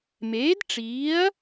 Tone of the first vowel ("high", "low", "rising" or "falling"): rising